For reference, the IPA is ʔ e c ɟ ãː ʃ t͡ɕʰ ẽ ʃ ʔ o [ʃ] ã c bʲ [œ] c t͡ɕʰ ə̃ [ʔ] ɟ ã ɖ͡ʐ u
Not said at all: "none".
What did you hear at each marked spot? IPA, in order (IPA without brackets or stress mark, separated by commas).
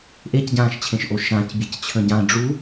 ʃ, ə, none